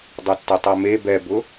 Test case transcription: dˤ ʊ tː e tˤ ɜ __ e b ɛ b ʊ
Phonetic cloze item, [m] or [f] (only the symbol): m